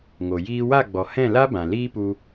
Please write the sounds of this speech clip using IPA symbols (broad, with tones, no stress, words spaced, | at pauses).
ŋo˨ jiː˧wa˦˨ɡ͡bɔ˨ hɛ̃˦˨la˦bã˨ liː˦pu˧